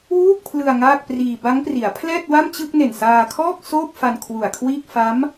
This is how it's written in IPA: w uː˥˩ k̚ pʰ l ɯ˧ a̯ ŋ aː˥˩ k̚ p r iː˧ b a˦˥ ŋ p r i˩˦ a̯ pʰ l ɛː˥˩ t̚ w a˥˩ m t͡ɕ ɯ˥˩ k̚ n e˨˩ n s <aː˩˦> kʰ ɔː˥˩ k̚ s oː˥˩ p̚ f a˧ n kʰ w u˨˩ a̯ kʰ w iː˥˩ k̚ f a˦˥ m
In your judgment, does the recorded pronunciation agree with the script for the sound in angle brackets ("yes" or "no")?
no